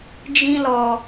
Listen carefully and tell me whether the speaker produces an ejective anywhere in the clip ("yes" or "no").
no